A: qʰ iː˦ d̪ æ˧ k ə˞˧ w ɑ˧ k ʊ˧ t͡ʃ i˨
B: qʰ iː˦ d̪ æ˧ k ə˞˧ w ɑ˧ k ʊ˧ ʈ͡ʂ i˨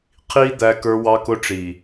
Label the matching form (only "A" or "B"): B